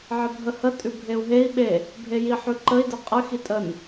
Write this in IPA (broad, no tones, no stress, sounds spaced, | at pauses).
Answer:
ʕ ə bʱ ə h ə tʼ ʉ bʱ e u̯ ɦ e i̯ ɓ e | bʱ e j i ħ ʉ ǃ ə i̯ d ə qʼ ə x i tʼ ə n